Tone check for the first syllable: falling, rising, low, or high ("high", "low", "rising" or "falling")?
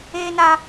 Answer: low